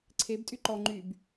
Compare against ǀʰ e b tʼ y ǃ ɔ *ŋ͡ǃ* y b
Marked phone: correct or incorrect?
correct